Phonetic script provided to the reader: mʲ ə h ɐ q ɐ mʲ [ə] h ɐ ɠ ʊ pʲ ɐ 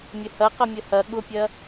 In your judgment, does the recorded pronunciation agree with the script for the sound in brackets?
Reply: yes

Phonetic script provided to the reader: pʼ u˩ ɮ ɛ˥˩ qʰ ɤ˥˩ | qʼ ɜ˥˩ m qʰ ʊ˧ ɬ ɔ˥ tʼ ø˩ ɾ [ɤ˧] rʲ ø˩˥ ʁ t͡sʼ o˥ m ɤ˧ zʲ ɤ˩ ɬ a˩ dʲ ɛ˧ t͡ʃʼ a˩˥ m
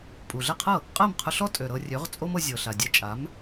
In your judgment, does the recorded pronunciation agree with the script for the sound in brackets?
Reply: yes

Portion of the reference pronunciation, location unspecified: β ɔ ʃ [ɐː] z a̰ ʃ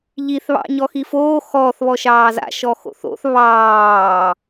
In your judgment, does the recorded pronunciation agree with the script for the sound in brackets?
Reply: no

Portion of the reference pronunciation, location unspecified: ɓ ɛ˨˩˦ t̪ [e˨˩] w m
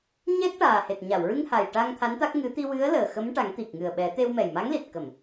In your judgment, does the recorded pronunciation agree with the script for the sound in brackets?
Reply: no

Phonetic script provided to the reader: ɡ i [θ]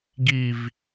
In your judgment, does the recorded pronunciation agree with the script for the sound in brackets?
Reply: no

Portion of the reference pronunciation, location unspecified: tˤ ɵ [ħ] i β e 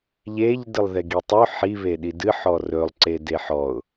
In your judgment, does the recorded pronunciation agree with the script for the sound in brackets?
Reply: yes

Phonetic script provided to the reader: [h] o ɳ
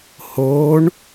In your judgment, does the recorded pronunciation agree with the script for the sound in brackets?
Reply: yes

